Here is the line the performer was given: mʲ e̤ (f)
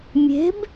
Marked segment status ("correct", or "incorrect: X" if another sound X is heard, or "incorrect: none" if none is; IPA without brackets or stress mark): incorrect: b